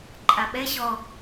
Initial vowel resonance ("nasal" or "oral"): oral